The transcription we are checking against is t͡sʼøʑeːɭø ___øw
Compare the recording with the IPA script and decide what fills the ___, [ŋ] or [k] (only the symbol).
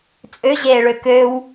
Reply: k